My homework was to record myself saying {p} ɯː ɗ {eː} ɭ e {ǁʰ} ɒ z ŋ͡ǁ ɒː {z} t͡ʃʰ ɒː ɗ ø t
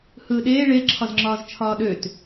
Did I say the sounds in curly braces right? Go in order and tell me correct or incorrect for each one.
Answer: incorrect: h, correct, correct, correct

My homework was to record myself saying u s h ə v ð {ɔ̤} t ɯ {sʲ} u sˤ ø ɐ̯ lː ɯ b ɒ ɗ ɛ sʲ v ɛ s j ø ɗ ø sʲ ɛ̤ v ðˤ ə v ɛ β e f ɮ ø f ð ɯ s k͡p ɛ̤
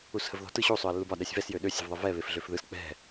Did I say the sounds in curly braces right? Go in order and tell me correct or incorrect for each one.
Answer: correct, incorrect: ɕ

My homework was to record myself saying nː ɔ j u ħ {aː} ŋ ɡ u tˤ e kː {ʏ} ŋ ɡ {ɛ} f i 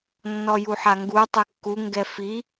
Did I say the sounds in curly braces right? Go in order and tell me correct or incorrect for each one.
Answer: incorrect: a, incorrect: u, correct

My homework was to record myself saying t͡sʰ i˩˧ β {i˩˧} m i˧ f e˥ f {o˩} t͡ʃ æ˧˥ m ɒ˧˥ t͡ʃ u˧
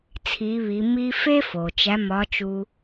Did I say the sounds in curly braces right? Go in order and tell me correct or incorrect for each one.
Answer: correct, correct

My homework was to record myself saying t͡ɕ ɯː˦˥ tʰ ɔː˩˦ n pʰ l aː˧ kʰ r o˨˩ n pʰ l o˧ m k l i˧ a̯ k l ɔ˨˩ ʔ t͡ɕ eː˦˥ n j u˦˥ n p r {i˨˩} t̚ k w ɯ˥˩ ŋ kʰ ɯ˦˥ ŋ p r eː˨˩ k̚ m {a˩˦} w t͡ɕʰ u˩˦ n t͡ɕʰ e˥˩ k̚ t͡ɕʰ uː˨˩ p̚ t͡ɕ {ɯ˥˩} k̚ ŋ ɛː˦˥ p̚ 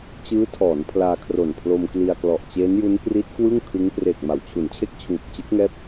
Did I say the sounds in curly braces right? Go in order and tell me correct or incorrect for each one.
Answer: incorrect: i˦˥, correct, incorrect: ɯ˦˥

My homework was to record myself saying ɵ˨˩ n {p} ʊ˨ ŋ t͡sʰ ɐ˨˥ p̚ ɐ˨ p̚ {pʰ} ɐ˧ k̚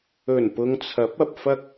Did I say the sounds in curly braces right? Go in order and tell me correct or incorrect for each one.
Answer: correct, incorrect: f

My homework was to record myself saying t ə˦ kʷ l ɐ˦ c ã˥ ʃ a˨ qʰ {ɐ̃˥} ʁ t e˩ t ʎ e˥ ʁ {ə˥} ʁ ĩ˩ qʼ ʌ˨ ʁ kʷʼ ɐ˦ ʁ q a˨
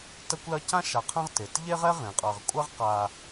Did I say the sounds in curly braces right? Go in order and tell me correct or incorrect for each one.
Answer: correct, incorrect: ɛ˥

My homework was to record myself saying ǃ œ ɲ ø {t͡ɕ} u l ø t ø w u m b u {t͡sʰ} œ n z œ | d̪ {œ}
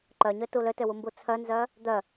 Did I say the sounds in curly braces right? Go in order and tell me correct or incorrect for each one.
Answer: incorrect: t, correct, correct

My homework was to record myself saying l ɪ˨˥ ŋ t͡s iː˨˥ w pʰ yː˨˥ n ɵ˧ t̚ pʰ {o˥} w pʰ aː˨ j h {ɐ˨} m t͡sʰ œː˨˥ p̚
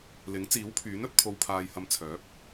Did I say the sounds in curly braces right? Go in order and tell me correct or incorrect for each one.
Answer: incorrect: o˨, incorrect: ɐ˨˧

